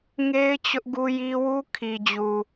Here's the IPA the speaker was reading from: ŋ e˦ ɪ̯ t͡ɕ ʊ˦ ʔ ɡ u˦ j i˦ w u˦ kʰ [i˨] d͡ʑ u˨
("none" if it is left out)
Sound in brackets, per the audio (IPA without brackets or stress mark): i˨